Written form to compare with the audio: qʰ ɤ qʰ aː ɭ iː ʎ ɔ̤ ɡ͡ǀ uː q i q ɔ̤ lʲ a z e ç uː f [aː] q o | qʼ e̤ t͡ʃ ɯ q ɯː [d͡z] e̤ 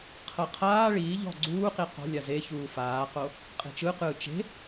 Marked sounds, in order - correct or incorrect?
correct, incorrect: t͡ʃ

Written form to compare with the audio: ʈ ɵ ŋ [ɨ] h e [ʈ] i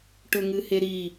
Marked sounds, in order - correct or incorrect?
correct, incorrect: ɾ

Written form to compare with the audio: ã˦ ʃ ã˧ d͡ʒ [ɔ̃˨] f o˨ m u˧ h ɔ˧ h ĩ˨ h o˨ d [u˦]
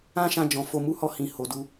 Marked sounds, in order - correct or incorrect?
correct, incorrect: u˧

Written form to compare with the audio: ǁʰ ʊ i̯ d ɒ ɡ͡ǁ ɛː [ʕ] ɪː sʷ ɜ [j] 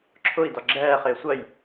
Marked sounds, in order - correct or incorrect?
incorrect: χ, correct

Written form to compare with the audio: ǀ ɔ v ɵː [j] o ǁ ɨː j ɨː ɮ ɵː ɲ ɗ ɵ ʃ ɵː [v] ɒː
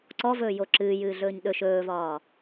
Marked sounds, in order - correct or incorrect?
correct, correct

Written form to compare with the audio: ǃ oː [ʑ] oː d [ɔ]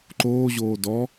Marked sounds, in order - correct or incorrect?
correct, correct

